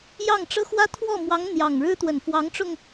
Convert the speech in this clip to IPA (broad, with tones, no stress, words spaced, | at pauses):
jɑ˥˩ŋʈ͡ʂɤ˥xwä˥ t̪ʰwɔ˥˩mwɑ˧˥ŋ n̪jɑ˨˩ŋɻɻ̩˥t̪wə˨˩n fwɑ˧˥ŋʈ͡ʂʊ˧ŋ